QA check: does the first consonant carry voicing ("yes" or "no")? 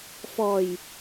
no